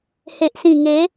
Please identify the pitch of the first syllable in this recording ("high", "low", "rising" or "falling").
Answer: low